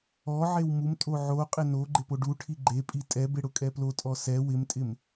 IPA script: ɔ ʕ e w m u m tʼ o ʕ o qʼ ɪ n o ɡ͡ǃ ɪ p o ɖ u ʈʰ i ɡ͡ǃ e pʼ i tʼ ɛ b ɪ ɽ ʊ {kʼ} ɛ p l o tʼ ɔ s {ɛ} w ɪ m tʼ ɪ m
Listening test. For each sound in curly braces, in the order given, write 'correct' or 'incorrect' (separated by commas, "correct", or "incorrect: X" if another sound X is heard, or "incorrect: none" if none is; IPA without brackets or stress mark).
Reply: correct, correct